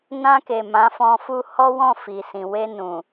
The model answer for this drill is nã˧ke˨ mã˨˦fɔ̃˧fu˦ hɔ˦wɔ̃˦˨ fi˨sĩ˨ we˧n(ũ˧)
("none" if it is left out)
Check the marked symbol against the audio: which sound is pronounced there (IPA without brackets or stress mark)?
ũ˨